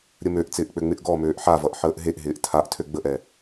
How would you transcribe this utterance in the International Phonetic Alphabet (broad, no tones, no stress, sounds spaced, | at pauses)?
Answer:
ɾʲ ə m ø ʔ t͡s ɪː ʔ k͡p ø ŋ͡m ɪ ʔ ɡ ɔ m øː ʔ ħ a v ʌ ʔ ħ əː ʔ ɦ e ʔ ɦ ɪː ʔ tʰ a ʔ tʰ ø ɡ͡b ə ʔ ɛ